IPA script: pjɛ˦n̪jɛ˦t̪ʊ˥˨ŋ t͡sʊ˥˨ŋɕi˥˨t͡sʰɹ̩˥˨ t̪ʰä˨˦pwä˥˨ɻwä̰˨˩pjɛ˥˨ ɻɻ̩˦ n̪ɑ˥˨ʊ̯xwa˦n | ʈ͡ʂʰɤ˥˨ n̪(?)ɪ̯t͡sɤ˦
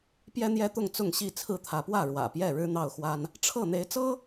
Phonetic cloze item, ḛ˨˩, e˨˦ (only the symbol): e˨˦